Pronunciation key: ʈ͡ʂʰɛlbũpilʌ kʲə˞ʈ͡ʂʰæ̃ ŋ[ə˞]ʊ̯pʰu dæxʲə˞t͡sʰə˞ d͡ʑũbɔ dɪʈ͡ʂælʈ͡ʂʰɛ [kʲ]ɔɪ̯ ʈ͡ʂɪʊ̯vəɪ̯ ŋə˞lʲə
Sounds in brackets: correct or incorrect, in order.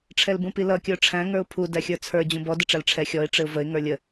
correct, incorrect

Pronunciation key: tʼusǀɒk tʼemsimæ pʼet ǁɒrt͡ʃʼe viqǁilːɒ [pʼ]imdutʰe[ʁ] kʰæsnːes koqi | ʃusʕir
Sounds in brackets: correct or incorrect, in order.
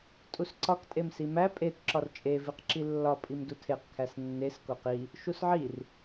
correct, incorrect

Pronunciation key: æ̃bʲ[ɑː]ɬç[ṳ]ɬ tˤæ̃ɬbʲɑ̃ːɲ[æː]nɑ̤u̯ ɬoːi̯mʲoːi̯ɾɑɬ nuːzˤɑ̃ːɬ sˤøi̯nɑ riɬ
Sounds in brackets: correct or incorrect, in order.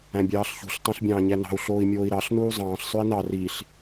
correct, correct, incorrect

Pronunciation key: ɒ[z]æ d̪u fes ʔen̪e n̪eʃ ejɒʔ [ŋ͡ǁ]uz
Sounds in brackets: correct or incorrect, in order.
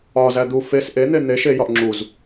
correct, correct

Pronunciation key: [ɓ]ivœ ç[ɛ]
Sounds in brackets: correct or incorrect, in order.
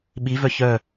correct, incorrect

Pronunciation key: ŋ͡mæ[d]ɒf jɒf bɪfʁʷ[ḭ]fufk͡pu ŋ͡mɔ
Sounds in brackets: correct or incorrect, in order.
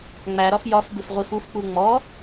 incorrect, incorrect

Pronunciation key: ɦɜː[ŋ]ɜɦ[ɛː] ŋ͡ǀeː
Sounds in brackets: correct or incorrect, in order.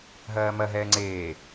incorrect, correct

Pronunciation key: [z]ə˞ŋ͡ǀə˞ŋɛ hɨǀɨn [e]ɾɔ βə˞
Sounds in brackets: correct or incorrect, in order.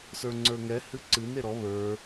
incorrect, correct

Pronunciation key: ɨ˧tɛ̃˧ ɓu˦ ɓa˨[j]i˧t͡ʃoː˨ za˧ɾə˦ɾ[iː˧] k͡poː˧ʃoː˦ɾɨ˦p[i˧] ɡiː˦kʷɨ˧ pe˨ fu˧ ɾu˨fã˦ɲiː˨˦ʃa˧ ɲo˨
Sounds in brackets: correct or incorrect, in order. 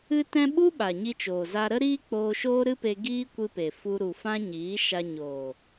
incorrect, incorrect, incorrect

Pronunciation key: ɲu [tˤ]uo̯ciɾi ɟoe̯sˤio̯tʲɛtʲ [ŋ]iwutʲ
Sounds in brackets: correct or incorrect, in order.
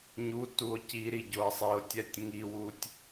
incorrect, correct

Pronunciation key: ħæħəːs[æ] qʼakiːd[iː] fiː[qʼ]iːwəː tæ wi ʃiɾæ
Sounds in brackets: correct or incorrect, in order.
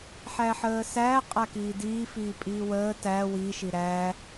correct, correct, incorrect

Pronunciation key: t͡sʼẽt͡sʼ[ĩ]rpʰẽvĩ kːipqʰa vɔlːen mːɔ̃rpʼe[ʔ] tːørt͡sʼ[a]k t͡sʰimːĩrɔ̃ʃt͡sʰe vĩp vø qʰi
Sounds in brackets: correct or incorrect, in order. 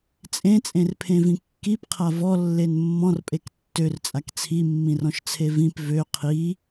incorrect, incorrect, correct

